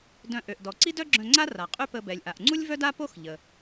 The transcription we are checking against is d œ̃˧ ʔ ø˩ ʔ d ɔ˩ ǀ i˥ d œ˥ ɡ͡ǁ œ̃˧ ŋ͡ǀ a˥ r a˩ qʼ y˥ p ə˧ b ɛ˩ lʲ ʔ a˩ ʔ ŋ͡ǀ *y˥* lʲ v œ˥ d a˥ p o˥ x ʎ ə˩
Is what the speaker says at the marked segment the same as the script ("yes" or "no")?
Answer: no